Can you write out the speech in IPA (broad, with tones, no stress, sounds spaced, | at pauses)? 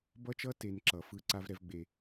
b ʌ˥ t͡ʃ ʌ˥ t e˨ n ǁ ʌ˩ f ɯ˦ ǀ a˥ v ɾ ɛ˦ v ɡ͡b e˩